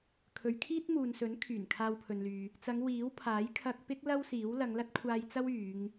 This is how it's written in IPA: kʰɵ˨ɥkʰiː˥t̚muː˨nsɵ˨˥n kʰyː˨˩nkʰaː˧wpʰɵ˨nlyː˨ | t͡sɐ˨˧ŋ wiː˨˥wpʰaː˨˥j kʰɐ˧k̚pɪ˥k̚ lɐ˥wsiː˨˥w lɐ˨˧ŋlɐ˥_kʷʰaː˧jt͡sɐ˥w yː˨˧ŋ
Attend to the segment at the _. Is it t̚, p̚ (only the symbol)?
t̚